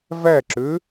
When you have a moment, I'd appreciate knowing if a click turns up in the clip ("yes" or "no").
yes